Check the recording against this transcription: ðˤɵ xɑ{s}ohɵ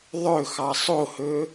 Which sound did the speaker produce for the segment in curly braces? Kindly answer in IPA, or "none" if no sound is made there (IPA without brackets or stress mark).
sˤ